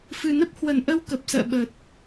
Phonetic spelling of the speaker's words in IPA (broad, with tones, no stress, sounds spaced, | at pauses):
f ɨ˨˩ n ə˦˥ p̚ h w ə˧˩ n ʔ ə˧ w k ə˨˩ p̚ s ə̰ː˧˨ ɓ ə˨˩ t̚